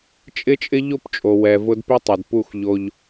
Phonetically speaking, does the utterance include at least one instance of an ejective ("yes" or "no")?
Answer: yes